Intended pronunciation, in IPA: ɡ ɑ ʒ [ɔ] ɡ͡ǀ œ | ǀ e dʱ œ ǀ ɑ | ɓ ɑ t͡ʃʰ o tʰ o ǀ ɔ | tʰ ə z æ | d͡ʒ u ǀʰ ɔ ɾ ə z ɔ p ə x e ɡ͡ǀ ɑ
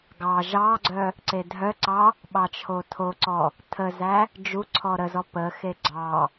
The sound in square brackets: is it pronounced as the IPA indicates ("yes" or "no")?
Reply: no